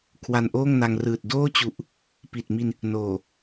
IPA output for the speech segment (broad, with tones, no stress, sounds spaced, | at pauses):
kʰ w a˧ n ʔ oː˥˩ ŋ n a˧ ŋ r ɯː˨˩ t̚ d oː˥˩ t͡ɕ u˨˩ ʔ | p i˨˩ t̚ m i˧ n | n oː˨˩